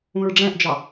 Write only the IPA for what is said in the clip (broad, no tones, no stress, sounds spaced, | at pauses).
ũ ɹ ɖ͡ʐ ɛ̃ ʔ d͡ʒ ɑ